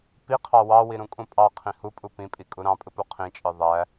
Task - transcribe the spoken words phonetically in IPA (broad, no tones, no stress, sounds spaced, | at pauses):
p i qʰ ɑ w ɑ w i ɾ ũ kʼ ũ pʼ ɑ qʰ ĩ h u pʼ u p ĩ pʼ i kʼ u ɾ ɑ̃ pʼ ɯ p u qʰ ĩ t͡ʃʼ ɯ ðˤ æ